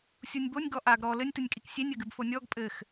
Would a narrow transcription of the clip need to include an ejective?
yes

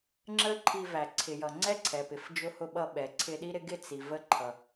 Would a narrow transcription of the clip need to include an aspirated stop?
yes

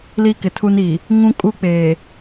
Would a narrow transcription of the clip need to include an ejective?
yes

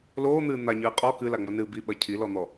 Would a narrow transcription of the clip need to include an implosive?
yes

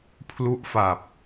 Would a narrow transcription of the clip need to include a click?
no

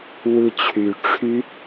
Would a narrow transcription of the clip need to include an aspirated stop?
yes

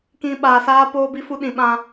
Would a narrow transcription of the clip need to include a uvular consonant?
no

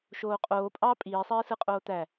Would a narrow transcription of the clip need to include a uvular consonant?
yes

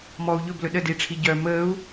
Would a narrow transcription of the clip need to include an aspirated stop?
yes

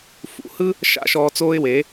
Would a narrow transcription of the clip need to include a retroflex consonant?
no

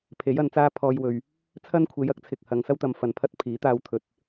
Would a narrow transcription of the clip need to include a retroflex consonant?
no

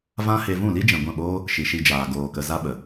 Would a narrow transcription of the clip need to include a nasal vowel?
yes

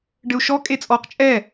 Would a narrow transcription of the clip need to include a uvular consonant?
yes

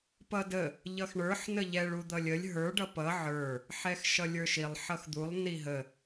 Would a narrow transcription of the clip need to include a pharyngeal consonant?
yes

